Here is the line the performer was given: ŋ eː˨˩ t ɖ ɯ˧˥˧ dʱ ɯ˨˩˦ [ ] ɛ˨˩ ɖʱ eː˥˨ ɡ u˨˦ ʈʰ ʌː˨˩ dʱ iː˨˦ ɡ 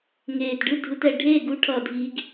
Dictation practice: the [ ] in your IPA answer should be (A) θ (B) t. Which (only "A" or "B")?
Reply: B